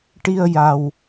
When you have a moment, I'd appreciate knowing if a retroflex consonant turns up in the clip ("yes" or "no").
yes